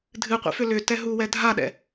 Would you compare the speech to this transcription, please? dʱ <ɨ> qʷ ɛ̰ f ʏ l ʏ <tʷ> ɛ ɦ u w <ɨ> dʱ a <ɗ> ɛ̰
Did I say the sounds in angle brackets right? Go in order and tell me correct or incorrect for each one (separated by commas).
correct, incorrect, incorrect, correct